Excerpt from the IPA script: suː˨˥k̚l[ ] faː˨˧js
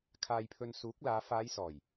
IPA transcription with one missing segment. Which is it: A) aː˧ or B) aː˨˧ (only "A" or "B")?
B